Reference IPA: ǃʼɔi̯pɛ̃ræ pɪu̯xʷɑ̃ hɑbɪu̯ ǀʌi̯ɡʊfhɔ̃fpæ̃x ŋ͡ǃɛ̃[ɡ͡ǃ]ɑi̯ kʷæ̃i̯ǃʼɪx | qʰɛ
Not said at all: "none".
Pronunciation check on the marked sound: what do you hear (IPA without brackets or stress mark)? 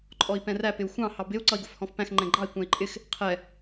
ɡ͡ǃ